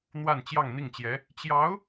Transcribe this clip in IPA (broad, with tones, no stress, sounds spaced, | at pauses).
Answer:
n̪ w a˥˧ n t͡ɕ j ɑ˥˧ ŋ n̪ i˥˩ ŋ t͡ɕ j ɛ˧˥ | t͡ɕ j ɑ˧˥ ʊ̯